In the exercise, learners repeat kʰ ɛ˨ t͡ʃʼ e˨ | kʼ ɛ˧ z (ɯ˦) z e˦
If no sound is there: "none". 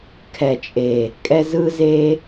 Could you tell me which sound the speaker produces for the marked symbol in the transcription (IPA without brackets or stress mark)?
ɯ˦